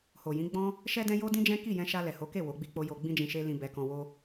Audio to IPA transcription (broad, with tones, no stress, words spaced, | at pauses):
ho˨jĩ˨˦ɡ͡bɔ̃˦ | ʃɛ˧dɛ̃˧ jo˦dĩ˦d͡ʒɛ̃˦ ki˦˨jɛ̃˧ʃa˧ lɛ˨ho˨˦ke˦˨ wo˨˦ɡ͡bi˦k͡po˦ jo˧ɡ͡bĩ˦d͡ʒĩ˧ʃe˦ lĩ˧ bɛ˧kɔ̃˧wo˦